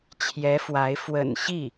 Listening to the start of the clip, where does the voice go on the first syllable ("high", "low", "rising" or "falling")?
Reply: rising